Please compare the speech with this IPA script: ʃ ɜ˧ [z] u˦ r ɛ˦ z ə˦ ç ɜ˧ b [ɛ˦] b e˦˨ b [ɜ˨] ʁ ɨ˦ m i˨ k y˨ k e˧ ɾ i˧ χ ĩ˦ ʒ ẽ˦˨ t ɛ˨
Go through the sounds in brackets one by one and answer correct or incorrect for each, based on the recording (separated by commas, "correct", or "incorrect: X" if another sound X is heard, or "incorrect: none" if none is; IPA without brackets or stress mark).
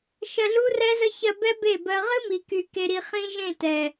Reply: incorrect: ɮ, correct, incorrect: ɜ˧